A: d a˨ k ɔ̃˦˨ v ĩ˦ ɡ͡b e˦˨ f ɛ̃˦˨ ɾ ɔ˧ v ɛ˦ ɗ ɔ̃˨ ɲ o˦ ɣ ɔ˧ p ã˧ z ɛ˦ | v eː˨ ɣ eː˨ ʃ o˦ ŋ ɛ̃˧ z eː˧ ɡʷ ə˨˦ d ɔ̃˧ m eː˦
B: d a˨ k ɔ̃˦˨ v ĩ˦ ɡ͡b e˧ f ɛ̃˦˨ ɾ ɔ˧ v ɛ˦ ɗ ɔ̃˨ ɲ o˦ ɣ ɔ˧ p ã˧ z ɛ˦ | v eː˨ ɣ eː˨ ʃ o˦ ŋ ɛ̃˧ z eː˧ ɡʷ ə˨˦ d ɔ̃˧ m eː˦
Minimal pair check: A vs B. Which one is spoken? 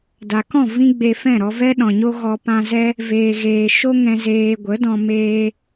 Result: B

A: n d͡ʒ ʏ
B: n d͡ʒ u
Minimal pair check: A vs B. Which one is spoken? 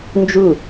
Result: B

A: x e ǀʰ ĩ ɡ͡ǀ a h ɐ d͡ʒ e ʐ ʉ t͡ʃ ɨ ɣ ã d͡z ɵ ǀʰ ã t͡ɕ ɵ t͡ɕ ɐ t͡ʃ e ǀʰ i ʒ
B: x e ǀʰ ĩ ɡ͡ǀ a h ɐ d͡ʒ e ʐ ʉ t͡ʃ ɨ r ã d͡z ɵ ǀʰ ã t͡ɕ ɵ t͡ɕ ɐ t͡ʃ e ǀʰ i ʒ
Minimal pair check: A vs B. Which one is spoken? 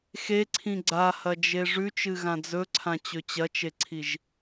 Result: A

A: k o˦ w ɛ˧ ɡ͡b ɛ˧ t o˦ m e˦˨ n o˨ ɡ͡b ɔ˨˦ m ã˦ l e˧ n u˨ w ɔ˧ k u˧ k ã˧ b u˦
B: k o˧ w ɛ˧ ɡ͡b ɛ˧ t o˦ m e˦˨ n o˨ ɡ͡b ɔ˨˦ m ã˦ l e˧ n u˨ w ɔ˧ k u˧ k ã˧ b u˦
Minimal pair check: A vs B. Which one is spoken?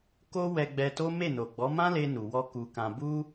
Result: A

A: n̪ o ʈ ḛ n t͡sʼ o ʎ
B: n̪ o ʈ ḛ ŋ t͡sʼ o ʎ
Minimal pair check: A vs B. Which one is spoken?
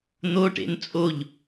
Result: A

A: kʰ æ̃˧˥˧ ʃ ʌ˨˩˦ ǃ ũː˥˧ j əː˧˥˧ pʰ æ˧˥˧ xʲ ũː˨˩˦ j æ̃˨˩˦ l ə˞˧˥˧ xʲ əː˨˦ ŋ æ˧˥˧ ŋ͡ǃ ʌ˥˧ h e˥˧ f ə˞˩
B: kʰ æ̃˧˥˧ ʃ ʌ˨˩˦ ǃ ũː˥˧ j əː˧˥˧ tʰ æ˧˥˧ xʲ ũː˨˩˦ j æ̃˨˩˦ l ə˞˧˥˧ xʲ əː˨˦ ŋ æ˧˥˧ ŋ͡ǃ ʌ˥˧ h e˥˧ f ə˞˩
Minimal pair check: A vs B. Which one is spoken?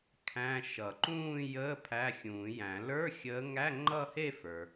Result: A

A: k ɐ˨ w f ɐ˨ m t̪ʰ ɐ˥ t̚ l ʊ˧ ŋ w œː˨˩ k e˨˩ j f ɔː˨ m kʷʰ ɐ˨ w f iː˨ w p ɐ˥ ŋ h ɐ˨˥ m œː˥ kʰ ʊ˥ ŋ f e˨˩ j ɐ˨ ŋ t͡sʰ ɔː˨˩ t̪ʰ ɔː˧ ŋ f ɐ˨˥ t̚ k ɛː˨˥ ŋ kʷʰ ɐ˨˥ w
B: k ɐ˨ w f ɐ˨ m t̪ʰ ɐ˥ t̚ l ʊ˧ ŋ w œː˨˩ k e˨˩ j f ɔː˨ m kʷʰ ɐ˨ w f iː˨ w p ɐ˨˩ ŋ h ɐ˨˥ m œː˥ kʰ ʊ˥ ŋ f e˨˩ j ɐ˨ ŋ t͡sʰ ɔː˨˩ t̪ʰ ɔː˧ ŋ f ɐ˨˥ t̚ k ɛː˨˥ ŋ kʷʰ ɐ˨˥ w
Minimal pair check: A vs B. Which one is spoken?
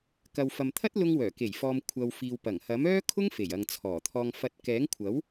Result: B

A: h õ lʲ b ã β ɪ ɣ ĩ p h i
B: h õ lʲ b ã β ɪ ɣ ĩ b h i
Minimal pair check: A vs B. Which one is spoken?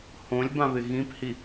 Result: A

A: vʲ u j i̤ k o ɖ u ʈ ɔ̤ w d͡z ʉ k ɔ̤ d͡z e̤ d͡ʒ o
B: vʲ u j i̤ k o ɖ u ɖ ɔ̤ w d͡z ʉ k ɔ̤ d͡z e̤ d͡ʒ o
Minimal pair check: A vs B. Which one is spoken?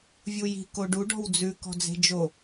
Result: B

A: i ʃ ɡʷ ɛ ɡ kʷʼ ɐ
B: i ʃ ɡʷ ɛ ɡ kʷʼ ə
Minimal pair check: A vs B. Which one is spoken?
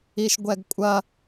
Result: A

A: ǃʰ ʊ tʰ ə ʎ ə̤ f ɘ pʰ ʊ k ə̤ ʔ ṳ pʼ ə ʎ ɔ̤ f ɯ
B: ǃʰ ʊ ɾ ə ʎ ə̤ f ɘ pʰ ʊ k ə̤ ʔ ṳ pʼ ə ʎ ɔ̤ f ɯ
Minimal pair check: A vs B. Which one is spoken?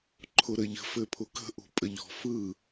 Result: B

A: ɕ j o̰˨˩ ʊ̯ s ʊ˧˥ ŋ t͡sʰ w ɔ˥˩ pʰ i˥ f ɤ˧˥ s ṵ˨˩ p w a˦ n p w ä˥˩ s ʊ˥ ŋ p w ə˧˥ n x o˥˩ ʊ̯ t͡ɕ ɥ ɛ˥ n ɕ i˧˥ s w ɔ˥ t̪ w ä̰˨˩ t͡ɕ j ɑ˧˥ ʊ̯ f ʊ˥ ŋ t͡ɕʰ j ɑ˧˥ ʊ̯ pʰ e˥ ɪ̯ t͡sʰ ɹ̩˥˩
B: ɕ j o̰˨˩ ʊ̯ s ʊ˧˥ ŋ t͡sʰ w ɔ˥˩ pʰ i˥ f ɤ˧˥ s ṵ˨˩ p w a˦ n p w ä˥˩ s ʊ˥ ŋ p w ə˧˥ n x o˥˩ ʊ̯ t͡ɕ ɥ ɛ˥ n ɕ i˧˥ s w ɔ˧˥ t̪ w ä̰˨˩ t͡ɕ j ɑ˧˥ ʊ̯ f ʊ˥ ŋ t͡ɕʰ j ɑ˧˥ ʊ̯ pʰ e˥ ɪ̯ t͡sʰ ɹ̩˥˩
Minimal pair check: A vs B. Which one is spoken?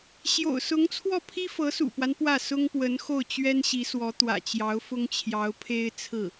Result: B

